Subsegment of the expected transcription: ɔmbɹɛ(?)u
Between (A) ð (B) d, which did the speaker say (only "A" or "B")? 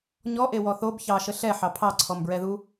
A